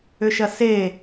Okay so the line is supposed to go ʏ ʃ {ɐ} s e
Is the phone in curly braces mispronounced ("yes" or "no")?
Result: no